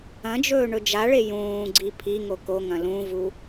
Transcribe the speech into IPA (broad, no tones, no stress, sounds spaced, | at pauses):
ɐ̃ d͡ʒ ɵː ɳ ɵ d͡ʒ a ɭ e j ũː ɡ͡ǀ i pʰ i ŋ o k o ŋ ɐ̃ l ũ v u